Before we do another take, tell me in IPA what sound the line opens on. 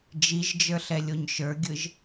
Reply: d͡ʒ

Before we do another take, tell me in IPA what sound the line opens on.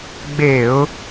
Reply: ɡ͡b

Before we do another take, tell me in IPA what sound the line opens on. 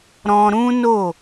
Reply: ɾ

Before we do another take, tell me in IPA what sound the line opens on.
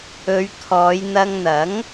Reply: ɵ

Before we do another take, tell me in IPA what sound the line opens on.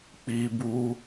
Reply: k͡p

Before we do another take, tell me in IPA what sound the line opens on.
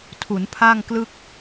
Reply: tʰ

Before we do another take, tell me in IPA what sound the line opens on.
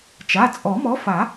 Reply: t͡ʃ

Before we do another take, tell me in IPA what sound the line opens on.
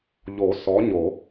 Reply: ʎ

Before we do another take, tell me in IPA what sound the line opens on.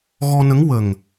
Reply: ɣ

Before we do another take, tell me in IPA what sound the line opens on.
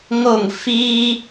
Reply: ŋ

